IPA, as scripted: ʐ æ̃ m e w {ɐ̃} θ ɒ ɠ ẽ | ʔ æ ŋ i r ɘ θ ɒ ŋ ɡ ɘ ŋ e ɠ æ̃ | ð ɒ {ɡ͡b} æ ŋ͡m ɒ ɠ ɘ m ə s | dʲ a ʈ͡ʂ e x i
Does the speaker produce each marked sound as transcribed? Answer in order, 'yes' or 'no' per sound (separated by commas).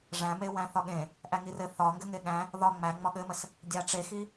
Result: no, no